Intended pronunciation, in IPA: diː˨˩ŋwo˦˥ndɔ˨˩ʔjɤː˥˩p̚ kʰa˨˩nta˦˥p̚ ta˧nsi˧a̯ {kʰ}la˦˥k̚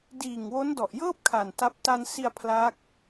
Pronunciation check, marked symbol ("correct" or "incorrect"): incorrect